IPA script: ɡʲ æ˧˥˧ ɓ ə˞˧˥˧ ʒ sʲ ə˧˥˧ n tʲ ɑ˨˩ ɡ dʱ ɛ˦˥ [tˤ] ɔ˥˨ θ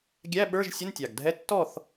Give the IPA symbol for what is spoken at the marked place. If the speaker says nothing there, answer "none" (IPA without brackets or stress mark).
tː